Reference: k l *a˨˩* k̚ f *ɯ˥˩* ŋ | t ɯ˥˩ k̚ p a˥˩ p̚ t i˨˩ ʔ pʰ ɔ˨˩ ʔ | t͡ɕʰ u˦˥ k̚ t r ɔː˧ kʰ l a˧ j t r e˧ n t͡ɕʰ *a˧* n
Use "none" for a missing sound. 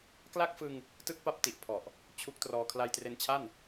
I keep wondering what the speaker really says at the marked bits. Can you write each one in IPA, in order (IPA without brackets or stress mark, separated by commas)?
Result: a˥˩, ɯ˧, a˥˩